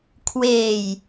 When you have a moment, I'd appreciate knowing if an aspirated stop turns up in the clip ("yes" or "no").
yes